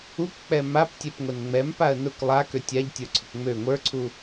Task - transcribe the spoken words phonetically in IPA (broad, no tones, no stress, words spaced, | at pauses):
ukk͡pɛ maptʲɛpŋʷɛn ŋ͡mɛmpaə̯ nʊk lˠa køtʲaʎ tʲə˞ǀʰʊkŋ͡mø ŋʷə˞ǀʰu